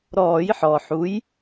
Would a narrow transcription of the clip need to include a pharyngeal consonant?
yes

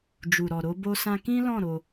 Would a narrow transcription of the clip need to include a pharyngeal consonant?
no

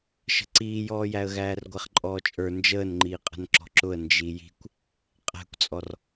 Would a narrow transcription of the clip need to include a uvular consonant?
yes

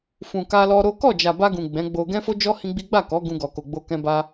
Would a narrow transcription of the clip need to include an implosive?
no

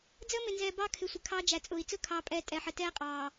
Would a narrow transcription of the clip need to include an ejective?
yes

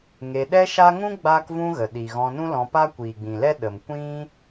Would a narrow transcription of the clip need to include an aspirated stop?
no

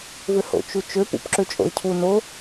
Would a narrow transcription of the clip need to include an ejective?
yes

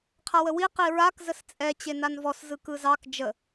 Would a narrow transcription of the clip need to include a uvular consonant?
yes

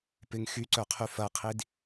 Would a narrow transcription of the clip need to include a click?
yes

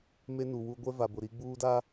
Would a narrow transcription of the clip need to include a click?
no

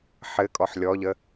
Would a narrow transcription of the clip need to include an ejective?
yes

